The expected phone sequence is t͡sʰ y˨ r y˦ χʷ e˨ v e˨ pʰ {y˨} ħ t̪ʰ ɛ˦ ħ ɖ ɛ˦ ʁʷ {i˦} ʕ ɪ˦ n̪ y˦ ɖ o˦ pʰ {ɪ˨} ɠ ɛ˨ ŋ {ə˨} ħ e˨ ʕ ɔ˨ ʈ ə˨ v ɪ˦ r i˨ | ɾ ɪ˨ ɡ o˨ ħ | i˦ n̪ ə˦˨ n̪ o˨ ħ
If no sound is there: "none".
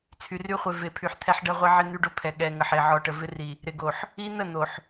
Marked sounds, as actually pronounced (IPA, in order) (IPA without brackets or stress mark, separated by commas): y˨, i˦, ɛ˨, ə˨